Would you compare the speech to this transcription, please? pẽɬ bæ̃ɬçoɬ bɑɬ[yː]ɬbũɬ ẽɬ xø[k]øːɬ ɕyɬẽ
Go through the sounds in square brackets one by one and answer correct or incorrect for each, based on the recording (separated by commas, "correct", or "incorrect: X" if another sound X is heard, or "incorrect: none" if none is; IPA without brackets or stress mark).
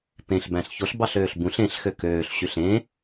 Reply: incorrect: øː, correct